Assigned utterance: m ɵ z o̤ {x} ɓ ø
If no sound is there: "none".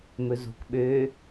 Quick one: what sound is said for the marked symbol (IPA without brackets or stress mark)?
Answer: k